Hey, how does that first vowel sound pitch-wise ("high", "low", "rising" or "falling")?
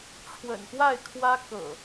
low